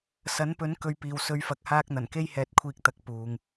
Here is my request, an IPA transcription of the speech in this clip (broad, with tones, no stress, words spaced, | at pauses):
sɐ˨˥npɵ˨˥n kɵ˨˧ɥpiː˨w sɵ˨˧ɥfɐ˨k̚haː˧k̚n̪ɐ˨˩n ke˧jhɛː˨t̚kʷʰiː˨k̚ t̪ɐ˨k̚puː˨ŋ